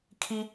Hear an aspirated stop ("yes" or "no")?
yes